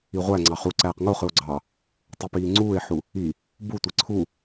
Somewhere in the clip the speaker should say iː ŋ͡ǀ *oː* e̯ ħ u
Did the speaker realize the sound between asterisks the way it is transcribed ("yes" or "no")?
no